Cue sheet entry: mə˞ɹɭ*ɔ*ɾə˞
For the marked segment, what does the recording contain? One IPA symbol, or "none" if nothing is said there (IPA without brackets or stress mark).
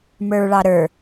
ɑ